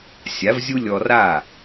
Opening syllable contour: rising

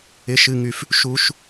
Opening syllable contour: high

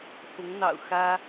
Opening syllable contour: rising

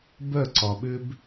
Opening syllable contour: falling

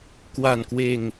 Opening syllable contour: low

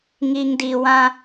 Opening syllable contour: low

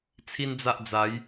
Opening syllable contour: high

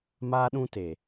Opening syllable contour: high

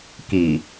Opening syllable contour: low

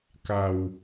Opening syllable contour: low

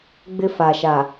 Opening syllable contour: high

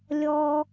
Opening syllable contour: low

